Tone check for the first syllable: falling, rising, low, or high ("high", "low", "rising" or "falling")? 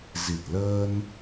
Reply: low